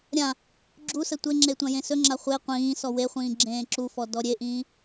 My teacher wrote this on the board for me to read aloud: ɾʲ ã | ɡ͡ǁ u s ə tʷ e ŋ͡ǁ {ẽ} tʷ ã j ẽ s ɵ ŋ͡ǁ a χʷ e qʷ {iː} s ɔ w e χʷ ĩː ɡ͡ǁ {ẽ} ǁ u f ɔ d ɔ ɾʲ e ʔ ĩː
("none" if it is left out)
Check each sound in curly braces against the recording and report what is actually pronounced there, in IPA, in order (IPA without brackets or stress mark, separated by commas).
e, ĩː, ẽː